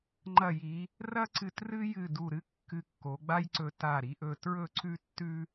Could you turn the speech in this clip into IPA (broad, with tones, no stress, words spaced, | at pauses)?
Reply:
ŋ͡ǃɐ˧˩ji˩˧ | rɐ˥ǀɨ˧t rɨ˥jɨ˧˩ du˧˩ɾɨ˥ kːɨ˧kːo˩˧ɡ͡ba˥jǀɵ˧ ta˧˩ɾi˩˧ʔɵ˧ tɹɵ˥˧ǀʉ˥ tːʉ˥